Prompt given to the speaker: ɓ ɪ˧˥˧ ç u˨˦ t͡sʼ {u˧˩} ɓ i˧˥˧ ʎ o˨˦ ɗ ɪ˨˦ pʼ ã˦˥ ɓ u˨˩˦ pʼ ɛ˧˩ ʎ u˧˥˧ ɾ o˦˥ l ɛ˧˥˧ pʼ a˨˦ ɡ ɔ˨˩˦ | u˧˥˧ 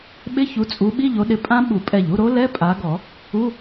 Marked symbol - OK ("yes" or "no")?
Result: no